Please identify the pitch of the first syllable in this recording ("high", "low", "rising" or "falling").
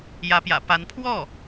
rising